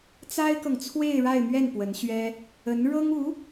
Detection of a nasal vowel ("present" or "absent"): absent